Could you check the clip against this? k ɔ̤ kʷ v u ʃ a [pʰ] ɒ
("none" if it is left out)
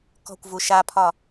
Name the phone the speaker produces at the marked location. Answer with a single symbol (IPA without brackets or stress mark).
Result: pʰ